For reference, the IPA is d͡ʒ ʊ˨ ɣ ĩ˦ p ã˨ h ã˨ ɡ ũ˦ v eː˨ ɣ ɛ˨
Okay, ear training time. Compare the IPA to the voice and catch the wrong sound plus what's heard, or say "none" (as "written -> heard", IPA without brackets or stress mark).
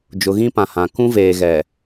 ɡ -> k